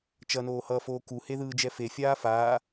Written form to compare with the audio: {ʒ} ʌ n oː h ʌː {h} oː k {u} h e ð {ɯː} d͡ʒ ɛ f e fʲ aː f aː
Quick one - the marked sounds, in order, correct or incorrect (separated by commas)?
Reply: incorrect, incorrect, correct, correct